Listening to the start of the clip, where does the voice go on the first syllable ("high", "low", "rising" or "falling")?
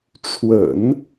low